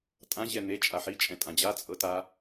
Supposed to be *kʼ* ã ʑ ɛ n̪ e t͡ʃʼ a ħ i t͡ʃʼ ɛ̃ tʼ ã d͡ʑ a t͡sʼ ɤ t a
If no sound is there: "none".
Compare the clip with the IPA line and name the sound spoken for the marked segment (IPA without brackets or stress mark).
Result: tʼ